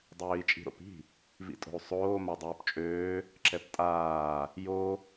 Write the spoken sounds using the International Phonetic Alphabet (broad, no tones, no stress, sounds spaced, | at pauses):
dˤ øː i̯ t͡ʃʼ i̤ ɾ o̰ p i̤ | v ḭ tʼ o̤ u̯ sˤ oː m a dˤ oː p t͡ʃʼ øː | ǁ ɛ p tʼ aː | j o